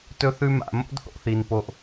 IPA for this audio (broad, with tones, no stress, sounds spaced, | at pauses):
t ɵ˦ θ ʉ˦ m a̰˨ m o̰˦ d θ o̰˧ θ i˨ n p o˦ ʔ